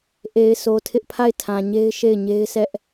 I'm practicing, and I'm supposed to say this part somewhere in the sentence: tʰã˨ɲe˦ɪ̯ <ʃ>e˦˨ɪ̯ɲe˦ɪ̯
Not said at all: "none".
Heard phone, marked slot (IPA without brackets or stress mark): ʃ